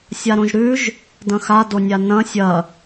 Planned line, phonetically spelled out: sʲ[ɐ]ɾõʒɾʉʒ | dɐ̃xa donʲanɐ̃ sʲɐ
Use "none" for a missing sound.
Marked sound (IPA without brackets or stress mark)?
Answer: a